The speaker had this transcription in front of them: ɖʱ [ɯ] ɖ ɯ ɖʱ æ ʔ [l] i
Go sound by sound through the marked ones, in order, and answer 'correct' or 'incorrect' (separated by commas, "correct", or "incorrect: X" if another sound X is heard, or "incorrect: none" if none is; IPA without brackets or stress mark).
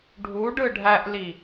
incorrect: u, correct